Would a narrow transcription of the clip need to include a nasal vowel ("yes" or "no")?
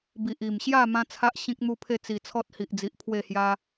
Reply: yes